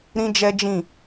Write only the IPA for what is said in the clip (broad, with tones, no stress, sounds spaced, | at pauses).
ɾ ĩ˦ d͡ʒ ɛ˦ d͡ʒ ĩ˦˨